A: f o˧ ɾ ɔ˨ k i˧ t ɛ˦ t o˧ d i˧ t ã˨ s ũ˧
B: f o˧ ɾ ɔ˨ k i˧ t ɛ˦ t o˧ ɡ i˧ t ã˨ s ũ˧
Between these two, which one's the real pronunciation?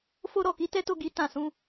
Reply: B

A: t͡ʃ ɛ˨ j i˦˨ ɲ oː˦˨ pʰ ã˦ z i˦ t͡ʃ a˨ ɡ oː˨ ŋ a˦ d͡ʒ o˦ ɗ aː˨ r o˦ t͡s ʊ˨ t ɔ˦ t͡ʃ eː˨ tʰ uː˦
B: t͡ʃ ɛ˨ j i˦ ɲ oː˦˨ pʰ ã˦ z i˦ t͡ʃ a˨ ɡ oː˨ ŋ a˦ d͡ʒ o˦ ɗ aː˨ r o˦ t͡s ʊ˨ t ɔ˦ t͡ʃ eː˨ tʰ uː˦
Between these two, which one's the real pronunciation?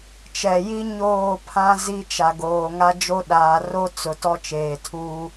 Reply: B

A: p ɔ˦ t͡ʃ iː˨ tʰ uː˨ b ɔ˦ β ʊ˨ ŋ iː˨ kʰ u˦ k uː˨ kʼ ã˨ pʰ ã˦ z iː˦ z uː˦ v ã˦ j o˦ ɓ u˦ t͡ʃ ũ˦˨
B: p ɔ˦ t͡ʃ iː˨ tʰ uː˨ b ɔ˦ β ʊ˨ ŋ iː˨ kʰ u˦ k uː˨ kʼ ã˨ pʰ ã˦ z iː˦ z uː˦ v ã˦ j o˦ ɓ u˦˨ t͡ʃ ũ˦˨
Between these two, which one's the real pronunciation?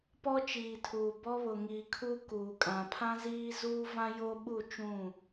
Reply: B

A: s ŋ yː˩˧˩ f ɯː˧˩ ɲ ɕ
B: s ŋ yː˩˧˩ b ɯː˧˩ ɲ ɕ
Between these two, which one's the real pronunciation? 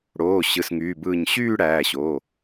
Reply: B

